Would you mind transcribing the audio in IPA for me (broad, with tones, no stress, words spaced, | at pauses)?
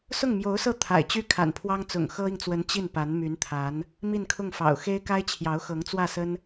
sʊ˥˩ŋmjo˧˥ʊ̯sɤ˥˩ t̪ʰa̰˨˩ɪ̯t͡ɕy˥ kʰa̰˨˩npʰwɑ˥ŋt͡sʊ̰˨˩ŋ xɤ˥i˨ŋt͡swə˧˥n t͡ɕi˥˩npa˧˥nmy˧˥nt̪ʰa˧˥n | mi˥˧nkʰʊ˥˩ŋfɑ̰˨˩ʊ̯ xe˥ɪ̯ka˥ɪ̯t͡ɕʰjɑ˧˥ʊ̯ xɤ˧˥ŋt͡swä˥˩sə˥n